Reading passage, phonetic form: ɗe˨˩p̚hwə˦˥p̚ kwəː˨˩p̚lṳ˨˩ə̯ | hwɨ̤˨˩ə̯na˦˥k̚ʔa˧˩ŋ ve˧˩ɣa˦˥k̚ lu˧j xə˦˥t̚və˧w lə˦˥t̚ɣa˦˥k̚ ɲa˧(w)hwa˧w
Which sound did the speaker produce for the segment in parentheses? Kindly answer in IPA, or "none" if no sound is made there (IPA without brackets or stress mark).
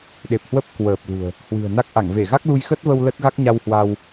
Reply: w